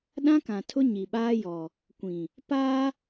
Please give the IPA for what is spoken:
ɗ ã˦ k ã˨ tʰ ʊ˦ ɲ i˨ ɓ aː˦ j ɔ˨ | kʷ ĩ˨ | p aː˦

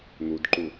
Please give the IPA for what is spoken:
n̪ u d ǃ u

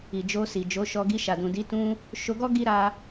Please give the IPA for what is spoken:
i˨ d͡ʒ o˧ s i˨ d͡ʒ o˨˦ ʃ ɔ˧ ɡ i˧ ʃ a˨ d ũ˨ d i˨˦ t ũ˧ | ʃ o˧ ɡ ɔ˦ ɡ i˦ ɾ a˧

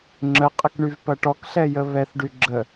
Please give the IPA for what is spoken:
ŋ͡ǁ ə qʼ ə k ɳ y v p ɐ ʈ ɔ k ɬ ɛ j ə β ɛ θ ɖ y ɡ͡ǁ ə

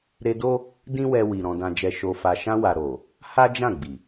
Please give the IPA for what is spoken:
ɾ e˧ d o˦ | d ĩ˦ w ɛ˧ w i˨ ɾ ɔ̃˨ d ã˨ d͡ʒ ɛ˨ ʃ o˨ f a˨ ʃ ã˧ w a˨ ɾ o˨ | h a˦ d͡ʒ ã˦˨ ɡ͡b i˨

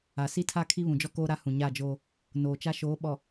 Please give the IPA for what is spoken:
a˨ s i˦ tʰ a˦ kʰ i˦ β ũ˨ d͡ʒ ɔ˦ k oː˦ ɾ a˦ h ũ˨ ɲ a˦˨ d͡ʒ oː˦ | n oː˨ t͡ʃ a˦ ʃ oː˨˦ ɓ ɔ˨

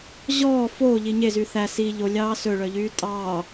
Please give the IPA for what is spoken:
ʑ ɔː f oː ʎ i ɲ e z yː θ æ s i ʎ o lʲ ɑː s ɵ ɭ œ ʎ yː tʼ ɑː

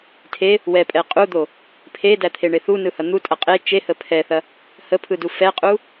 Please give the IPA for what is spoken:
tʰ e | w ɛ pʼ ɛ qʼ u d̪ o | pʰ e d æ t̪ʰ e ɳ e θ u n ɯ h ɐ n̪ u tʼ ɐ qʼ e t͡ʃ e h ə pʰ ɛ θ ɐ | h ə pʰ ɯ d u f ɛ qʼ u

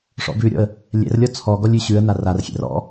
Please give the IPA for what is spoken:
ʂ ɔ̰ b ʉ ɾʲ ɔ̰ ə̯ | lʲ ɛ̰ r lʲ ɔ t͡sʰ ɔ ɡ ɔ lʲ ʉ ɕ ʉ ə̯ n a r a r xʲ ɛ̰ r ɔ̰

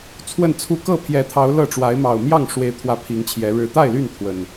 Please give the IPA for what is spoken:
t͡sʰ w ə˥˨ n t͡sʰ u˥˨ k ɤ˥˨ pʰ j ɛ˨˦ t̪ʰ ɑ˨˦ ʊ̯ l ɤ˥˨ ʈ͡ʂ w a˨˦ ɪ̯ m ɑ˨˩ ʊ̯ m j ɑ˥˨ ŋ ʂ w e˨˦ ɪ̯ t̪ʰ w ä˨˦ pʰ i˨˦ ŋ t͡ɕʰ j ɛ˨˦ ɻ ɻ̩˨˩ t̪ a˥˨ ɪ̯ l y˥˨ n t̪ʰ w ə˨˩ n

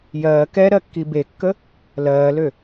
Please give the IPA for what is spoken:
j ɜː k ɛ ɾ ɜ kː i b e kː ə | l ɜː l ø

